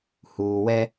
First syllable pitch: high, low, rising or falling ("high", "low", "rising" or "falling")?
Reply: low